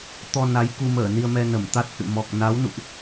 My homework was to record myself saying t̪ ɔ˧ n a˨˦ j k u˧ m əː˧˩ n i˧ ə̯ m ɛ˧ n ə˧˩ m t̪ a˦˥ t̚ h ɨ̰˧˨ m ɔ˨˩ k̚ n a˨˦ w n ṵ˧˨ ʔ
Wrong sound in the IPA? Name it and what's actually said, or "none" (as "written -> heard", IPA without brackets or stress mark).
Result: none